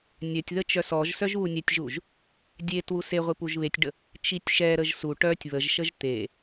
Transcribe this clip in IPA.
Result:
nʲ œ tʲ ð ə t͡ʃ œ s ɔ ʒ s œ ʒ β u nʲ ɛ tʲ ʒ u ʒ | dʲ e t w u s e ʁʷ i p u ʒ β e tʲ ɖ ə | t͡ʃ i tʲ ʃ ɛ ɾ ə ʒ s u ʈ œ tʲ β ə ʒ ʃ ə ʒ t̪ e

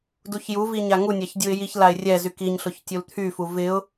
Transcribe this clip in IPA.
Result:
d u ç j u v i ɲ a ŋ u nʲ a ç dʲ u ɪ̯ j i ç l a ɪ̯ rʲ ɛ z y k i ɲ ɬ ʊ ç tʲ u l t̪ʰ y f u v ɪ ʊ̯

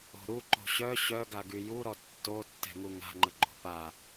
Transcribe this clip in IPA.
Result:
o̤ ɾ u ǃ o̤ ɕ œ ɕ œ ɡ a ɡ y j u ɾ ɔ tː o tː ɛ̤ ŋ u ŋ a̤ ŋ͡ǃ ə ɡ͡ǃ o̤ p a

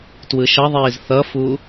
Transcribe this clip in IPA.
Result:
t w ɯ ʃ ʌ ðˤ iː z θ ʌ f u

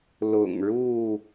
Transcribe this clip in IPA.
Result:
l ʊ̰˨˩ ŋ ɻ u˥˨

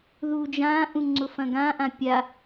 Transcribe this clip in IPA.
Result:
ð uː d͡ʒ ãː ʔ ũ ŋ͡ǀ ʊ f ɐ̃ ɡ ã ʔ ã pʲ a

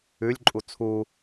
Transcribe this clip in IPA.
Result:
ʉ lʲ ǃʼ u t͡sʰ u

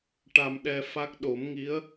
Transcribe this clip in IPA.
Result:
ʈ a˧ m ɗ ɛ˧ f a˦˥ k̚ ɗ o˨˩˦ m ŋ i˧˥ ə̯

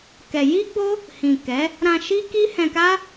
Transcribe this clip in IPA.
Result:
k ɛ˧ j i˦ ɡ͡b o˦ | h ĩ˨ k ɛ˨˦ | ɾ ã˧ ʃ i˦ k i˦ h ɛ̃˧ k a˦

